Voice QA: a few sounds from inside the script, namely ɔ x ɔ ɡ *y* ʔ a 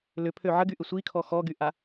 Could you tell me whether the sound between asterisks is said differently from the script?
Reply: no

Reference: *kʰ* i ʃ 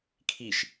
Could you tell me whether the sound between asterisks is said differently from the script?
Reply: no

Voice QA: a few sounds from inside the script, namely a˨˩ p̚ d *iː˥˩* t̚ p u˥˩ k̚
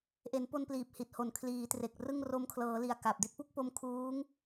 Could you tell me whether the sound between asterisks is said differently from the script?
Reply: yes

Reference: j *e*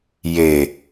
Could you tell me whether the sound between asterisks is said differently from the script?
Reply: no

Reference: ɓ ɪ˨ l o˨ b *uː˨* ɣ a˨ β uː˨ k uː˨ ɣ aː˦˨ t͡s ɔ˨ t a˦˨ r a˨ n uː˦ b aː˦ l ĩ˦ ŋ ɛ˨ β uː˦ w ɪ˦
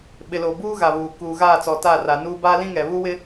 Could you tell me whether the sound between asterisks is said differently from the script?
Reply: yes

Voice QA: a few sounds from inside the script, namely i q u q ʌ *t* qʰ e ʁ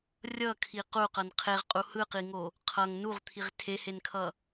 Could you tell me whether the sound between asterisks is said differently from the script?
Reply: yes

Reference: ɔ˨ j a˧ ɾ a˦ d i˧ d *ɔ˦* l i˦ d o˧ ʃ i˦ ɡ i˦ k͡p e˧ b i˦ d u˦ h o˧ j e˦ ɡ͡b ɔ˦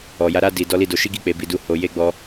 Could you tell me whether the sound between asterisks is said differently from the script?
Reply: no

